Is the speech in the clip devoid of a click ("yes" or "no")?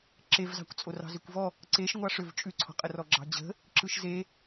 no